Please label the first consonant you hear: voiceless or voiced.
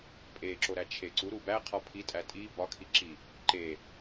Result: voiceless